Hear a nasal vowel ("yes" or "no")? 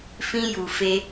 yes